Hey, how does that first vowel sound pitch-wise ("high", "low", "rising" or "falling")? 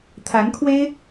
rising